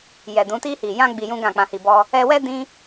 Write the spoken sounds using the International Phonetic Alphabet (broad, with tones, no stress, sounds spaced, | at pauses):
j ɛ˨ d ũ˨˦ t i˧ h i˨ j ã˧ ɡ͡b i˧ j ũ˦ ɡ ã˦˨ k͡p ã˧ h i˧ b ɔ˦ | ɛ˧ w ɛ˦ d ĩ˦